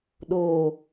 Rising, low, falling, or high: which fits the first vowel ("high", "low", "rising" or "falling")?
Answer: low